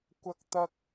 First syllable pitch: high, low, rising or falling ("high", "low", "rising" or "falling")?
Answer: high